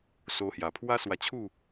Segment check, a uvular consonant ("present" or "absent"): absent